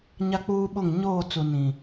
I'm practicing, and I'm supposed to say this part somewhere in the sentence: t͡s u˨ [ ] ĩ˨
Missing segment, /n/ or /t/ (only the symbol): n